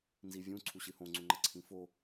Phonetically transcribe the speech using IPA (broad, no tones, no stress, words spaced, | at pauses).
nzivʲũ ǀʰuɕɨhõ ŋ͡ǀuŋ͡ǃɐǀʰĩfo